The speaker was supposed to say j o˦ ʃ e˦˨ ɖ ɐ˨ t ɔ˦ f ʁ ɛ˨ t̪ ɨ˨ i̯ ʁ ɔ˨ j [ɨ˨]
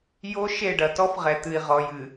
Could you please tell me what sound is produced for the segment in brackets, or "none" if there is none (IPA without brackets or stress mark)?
ɨ˨